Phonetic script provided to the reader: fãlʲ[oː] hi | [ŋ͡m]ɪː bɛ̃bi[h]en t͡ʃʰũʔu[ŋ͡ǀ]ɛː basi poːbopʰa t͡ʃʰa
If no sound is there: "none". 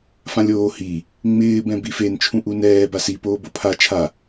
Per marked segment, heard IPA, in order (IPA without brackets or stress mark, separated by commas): oː, ŋ͡m, f, n